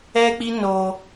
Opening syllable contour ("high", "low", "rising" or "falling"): high